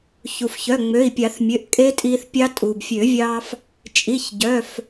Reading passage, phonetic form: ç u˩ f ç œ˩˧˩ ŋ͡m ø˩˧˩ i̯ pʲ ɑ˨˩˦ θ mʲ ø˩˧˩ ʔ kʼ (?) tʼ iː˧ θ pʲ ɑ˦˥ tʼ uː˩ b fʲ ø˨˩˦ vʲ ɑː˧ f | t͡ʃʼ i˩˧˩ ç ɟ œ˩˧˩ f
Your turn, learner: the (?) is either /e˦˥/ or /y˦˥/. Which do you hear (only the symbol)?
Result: e˦˥